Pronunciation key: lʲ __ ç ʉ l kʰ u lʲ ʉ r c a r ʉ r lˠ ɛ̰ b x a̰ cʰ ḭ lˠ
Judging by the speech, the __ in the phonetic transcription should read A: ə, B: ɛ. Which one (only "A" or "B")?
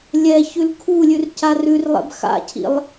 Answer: B